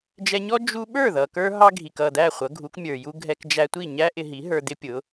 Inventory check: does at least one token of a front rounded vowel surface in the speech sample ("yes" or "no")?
no